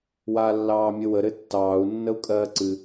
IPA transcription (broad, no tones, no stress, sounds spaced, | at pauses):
w aː lː ɑː mʲ ɘ w ə ɾ ɘ tː ɑː u̯ nː ə u̯ kʼ ɜː ǀ ɨ